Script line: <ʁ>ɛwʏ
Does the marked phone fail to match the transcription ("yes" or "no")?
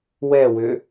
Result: yes